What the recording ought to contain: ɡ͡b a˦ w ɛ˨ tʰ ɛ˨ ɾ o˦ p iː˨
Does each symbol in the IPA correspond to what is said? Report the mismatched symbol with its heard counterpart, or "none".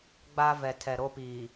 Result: w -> v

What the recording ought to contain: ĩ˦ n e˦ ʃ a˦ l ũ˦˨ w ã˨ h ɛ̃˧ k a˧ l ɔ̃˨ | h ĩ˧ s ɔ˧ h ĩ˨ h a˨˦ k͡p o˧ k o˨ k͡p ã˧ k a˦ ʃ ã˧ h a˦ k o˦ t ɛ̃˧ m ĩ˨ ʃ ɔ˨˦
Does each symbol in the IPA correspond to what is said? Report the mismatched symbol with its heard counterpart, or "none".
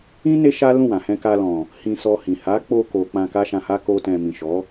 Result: none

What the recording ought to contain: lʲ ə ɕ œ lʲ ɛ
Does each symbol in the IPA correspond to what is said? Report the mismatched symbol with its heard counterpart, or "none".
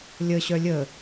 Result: ɛ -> ə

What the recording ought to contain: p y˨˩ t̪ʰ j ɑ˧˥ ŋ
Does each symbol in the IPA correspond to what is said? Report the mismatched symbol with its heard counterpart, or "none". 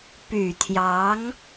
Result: none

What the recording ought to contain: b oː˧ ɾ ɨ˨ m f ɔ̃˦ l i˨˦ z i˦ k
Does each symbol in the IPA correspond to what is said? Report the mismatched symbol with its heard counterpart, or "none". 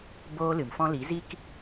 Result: ɾ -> l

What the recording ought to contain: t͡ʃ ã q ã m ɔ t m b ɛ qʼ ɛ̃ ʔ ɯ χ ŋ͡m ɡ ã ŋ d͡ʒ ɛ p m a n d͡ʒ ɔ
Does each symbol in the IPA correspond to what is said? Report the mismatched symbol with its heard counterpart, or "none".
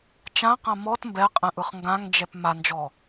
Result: ŋ͡m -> ŋ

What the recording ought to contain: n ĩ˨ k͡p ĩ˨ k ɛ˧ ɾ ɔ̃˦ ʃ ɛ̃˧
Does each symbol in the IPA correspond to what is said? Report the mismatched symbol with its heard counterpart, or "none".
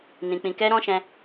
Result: none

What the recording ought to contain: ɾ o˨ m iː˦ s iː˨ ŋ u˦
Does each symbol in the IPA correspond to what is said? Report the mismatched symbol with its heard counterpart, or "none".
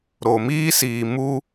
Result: ŋ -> m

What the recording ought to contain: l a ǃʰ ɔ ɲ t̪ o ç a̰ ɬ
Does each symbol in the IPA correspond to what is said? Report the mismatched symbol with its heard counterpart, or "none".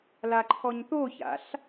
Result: none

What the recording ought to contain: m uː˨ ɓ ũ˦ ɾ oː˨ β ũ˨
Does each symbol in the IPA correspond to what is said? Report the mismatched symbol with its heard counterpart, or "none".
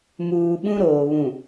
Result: none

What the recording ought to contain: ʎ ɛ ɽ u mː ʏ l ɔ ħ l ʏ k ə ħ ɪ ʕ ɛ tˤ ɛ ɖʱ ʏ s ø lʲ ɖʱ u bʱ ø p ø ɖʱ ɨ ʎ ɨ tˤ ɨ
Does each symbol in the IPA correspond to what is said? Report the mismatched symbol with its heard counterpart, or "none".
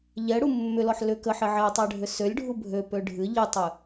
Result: none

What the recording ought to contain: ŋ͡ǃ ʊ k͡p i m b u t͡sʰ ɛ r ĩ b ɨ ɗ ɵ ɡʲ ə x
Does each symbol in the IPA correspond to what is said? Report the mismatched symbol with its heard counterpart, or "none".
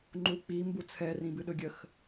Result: ʊ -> u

